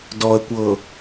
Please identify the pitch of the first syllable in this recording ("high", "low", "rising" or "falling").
low